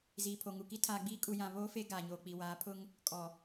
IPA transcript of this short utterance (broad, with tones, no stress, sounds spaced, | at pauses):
z iː˨ pʰ o˨ ŋ u˨ k i˦ tʰ aː˨ ɡ͡b iː˦ kʼ u˨ j ã˨ β oː˦ f e˦ ɡ aː˨ ɲ oː˨ k͡p i˨ w aː˨˦ pʰ ʊ˦ ŋ | kʼ ɔ˨